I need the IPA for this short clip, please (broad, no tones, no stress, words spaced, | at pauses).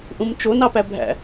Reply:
ʔũmt͡ʃo nɑpæbʱæ̰